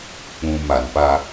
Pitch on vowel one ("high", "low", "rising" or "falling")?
low